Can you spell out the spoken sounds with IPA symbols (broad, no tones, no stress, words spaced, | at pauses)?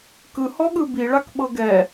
kɯhɔɠɯ biɭakɓɤ ɡɛ